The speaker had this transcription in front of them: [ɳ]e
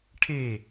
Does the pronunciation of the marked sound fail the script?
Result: yes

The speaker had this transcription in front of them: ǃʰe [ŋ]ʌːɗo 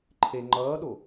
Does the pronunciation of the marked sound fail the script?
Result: yes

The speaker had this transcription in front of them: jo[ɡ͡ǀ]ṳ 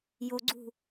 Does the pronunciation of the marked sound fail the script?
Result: no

